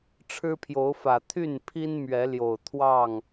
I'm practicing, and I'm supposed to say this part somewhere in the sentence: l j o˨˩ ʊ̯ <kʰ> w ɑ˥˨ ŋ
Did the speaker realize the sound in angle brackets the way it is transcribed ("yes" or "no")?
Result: no